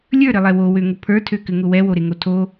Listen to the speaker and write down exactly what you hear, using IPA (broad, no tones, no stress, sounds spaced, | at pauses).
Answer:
lʲ ə˞ ɾ ɘ lˠ ɛ w o w ø ŋ ʊ pʰ ə˞ tʰ ø k ɘ ŋ ʊ w ɛ w o ɾ e ŋ o tʰ o